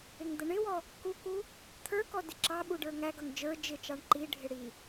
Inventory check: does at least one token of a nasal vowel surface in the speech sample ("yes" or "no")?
no